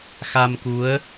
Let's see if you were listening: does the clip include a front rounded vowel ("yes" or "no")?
no